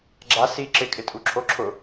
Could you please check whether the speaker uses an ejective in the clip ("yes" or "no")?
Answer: yes